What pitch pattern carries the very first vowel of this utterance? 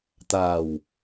low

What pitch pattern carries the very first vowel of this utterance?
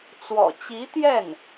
low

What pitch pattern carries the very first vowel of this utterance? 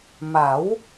rising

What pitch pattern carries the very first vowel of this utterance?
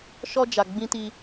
high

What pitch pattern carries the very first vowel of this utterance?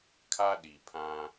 high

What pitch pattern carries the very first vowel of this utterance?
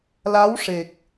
rising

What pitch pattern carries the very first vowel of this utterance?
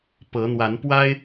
rising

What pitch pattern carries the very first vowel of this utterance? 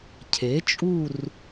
rising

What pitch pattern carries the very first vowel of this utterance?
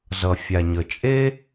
low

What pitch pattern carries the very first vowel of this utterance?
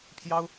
high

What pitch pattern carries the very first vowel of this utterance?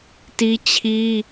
high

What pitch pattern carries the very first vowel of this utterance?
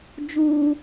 high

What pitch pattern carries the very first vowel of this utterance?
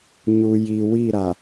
low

